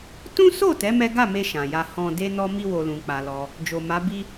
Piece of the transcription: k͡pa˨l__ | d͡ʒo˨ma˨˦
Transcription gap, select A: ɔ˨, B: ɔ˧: B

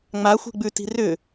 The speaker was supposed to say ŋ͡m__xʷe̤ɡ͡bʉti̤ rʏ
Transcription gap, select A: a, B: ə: A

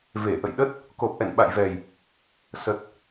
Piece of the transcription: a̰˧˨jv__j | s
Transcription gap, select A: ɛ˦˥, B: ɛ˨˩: B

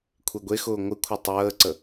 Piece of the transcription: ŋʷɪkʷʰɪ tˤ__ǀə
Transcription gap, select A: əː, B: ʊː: A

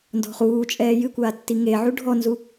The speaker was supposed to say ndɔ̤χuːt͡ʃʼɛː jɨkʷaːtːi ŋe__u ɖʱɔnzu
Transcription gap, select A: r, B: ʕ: B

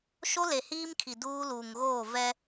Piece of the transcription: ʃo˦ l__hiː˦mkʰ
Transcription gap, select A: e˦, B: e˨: B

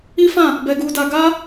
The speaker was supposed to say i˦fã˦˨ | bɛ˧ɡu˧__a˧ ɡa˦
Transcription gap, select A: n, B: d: B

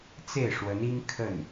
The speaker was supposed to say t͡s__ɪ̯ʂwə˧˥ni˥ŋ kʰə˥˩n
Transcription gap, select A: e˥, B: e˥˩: B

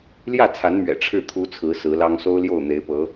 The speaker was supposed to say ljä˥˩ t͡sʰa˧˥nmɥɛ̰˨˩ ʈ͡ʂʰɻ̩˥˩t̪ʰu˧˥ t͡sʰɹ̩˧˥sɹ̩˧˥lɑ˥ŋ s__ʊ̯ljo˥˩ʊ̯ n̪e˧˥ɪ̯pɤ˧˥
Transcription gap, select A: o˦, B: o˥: B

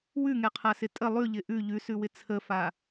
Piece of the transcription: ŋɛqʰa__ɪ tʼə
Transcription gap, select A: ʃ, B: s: B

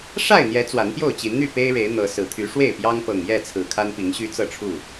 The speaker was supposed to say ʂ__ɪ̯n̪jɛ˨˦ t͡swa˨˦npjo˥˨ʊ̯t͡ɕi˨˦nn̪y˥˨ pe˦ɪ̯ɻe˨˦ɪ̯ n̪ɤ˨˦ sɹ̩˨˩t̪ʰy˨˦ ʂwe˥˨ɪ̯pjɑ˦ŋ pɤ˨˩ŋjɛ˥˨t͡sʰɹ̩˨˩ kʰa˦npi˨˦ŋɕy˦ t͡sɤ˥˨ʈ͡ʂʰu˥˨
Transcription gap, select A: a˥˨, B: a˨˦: A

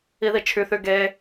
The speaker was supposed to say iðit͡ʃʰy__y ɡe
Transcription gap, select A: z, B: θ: B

